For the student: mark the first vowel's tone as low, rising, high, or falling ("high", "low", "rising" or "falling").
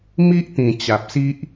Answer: high